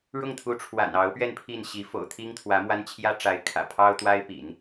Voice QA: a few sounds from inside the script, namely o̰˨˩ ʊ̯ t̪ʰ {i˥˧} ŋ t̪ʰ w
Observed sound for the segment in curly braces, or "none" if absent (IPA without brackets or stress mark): i˥